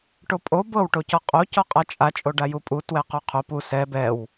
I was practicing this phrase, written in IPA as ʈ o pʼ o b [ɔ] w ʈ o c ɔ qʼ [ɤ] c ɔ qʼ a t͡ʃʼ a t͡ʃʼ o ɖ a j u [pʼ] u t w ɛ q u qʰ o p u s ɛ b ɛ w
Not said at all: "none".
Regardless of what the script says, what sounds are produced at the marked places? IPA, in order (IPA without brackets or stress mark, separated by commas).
ɤ, o, pʼ